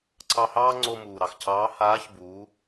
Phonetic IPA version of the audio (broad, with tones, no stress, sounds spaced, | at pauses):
ǀ ɑ˧ h ɑː˥ ŋ͡ǀ o˧ m uː˩ ɾ ɑ˩ x cʰ ɑː˧˥ h aː˧˥ ç b uː˩˧